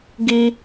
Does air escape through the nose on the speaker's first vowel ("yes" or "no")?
no